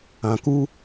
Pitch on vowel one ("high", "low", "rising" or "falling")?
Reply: low